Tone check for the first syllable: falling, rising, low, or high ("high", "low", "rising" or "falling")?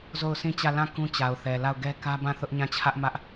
falling